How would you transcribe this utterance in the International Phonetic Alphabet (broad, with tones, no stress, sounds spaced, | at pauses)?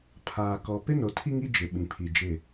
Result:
pʰ aː˨ k ɔ˨ p ɪ˦ n o˨ tʰ i˦ ŋ i˦ d͡ʒ ɪ˨ ɓ ĩ˨ pʰ i˨ d͡ʒ ɪ˦˨